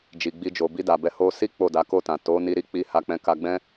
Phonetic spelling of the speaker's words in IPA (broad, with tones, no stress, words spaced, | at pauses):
d͡ʒi˨ɡ͡bi˧d͡ʒo˨ bi˧da˨bɛ˨˦ ho˧si˦ k͡po˦˨da˨˦ko˦˨tã˨ to˨˦ni˧ɾi˦ k͡pi˧ ha˧k͡pɛ̃˧ ka˧ɡ͡bɛ̃˦